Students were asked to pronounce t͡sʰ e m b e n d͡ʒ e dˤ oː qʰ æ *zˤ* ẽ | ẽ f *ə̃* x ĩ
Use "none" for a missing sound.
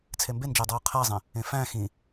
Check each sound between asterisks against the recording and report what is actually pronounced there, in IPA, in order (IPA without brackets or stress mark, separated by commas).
zˤ, æ̃